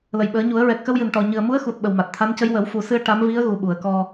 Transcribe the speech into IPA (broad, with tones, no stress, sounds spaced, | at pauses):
l ə˨˩˨ j ɓ əː˨˩˦ ɲ u˨˩˦ ə̯ ɹ ɛ˨˩ k̚ x ə˧ w j ɨ˨˩ n ʈ ɔ˨˩ ɲ ɨ˨˩ ə̯ m u˧˥ ə̯ x u˨˩ t̚ ɓ ə˨˩ w m a˨˩ t̚ t̪ʰ a˧˥ n c ə˧˥ j w ə˨˩˦ w f u˨˩ s ɨ˧ ə̯ ʈ a˧˥ m v i˧˥ ə̯ ɣ u˨˩ ɓ u˨˩˨ ə̯ k ɔ˧